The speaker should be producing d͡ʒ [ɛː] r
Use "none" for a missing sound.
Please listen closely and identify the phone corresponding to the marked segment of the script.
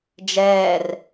ɛː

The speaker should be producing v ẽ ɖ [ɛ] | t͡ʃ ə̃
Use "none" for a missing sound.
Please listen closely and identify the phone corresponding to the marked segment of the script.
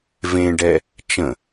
ɛ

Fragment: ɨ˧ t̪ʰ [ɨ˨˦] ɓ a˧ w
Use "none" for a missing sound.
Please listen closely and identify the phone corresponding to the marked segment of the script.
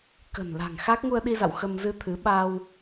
ɨ˨˦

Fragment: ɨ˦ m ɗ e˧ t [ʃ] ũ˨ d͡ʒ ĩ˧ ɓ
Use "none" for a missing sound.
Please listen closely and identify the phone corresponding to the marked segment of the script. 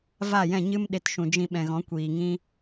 ʃ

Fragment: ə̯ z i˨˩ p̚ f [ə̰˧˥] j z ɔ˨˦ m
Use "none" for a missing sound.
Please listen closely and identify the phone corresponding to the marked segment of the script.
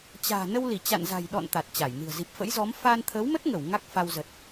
ə̰˧˥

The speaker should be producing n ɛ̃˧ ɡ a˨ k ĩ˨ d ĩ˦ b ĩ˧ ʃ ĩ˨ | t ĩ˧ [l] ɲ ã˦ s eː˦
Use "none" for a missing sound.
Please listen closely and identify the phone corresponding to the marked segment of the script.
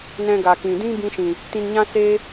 n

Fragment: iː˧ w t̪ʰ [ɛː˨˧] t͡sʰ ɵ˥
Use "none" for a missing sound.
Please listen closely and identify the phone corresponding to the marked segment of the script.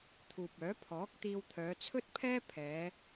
œː˨˧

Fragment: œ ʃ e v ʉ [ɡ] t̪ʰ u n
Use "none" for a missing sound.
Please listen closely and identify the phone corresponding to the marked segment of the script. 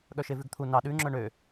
ɡ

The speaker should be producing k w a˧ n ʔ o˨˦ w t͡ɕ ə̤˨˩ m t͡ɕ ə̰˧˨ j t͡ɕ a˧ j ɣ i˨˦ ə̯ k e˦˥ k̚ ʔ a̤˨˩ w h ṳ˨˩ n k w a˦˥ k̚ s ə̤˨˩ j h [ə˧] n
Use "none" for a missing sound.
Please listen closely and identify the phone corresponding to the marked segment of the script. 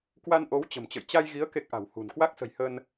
ə˧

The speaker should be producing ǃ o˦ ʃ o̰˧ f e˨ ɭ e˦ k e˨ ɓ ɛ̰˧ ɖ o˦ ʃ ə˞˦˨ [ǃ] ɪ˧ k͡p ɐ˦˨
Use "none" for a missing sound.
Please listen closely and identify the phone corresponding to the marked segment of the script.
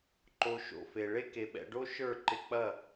ǃ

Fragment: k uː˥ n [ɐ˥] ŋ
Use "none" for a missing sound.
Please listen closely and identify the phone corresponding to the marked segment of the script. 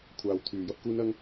ɐ˥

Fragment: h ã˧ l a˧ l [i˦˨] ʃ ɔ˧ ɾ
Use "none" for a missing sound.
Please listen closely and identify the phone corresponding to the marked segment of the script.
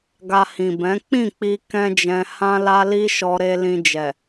i˧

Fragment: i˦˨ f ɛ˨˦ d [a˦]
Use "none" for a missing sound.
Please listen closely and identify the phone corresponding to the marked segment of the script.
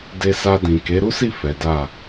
a˦˨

